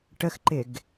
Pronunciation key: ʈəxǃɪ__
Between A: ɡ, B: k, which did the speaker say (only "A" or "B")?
A